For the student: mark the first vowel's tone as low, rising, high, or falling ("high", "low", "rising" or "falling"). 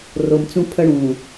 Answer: low